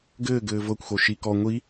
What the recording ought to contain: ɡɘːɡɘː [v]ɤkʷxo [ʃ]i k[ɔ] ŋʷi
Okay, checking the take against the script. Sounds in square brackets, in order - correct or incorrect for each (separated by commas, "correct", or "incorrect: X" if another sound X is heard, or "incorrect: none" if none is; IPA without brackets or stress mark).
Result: correct, correct, correct